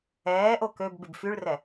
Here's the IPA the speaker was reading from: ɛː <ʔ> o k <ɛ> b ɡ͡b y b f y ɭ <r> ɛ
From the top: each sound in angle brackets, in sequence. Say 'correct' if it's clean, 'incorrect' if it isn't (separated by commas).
correct, incorrect, correct